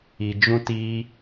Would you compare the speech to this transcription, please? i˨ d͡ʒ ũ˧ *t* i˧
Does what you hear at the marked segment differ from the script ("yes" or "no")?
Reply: no